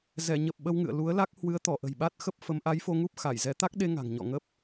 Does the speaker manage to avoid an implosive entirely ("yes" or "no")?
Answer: no